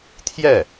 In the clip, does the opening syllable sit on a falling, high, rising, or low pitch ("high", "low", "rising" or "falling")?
falling